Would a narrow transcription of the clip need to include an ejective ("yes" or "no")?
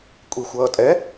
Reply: yes